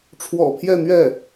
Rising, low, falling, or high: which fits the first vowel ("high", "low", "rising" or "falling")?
low